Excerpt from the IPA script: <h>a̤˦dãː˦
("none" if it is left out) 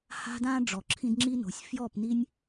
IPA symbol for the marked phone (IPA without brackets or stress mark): h